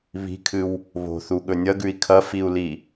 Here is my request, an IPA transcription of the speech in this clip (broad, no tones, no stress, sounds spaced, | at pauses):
β i̤ kʰ ɨ w | β o̤ θ u ɠ ɵ nʲ ɐ ɡ ʉ i̯ kʰ ɐ f i u̯ l i